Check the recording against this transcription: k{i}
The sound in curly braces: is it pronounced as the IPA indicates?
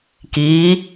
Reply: yes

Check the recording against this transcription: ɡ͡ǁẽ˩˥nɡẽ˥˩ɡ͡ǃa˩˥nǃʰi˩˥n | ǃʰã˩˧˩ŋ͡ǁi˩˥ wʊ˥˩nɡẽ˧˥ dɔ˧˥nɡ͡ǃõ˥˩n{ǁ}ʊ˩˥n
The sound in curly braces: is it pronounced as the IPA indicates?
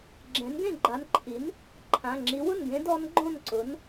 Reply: no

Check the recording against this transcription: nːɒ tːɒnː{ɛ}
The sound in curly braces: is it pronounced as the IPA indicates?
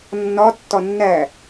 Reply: no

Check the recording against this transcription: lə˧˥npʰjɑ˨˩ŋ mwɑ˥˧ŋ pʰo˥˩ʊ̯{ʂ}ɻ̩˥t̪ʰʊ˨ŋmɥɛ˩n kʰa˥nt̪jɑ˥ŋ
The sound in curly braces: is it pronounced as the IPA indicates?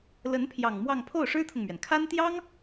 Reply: yes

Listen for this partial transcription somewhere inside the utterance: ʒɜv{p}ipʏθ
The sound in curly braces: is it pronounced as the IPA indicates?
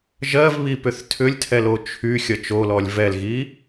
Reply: no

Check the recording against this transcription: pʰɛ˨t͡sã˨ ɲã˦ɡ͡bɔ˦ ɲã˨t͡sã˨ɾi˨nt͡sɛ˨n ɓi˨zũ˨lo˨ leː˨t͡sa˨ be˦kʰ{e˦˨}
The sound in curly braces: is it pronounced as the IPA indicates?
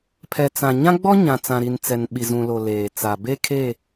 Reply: yes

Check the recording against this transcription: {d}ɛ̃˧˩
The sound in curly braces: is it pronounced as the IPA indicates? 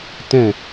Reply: no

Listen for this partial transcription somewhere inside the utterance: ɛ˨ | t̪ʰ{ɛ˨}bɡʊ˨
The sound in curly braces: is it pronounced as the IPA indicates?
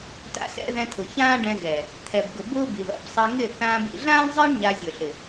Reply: yes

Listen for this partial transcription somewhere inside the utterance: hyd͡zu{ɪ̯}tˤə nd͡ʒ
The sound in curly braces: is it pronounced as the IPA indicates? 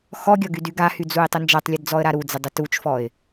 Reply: yes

